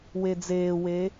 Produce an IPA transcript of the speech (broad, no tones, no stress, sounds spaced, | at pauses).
w e d͡z eː w e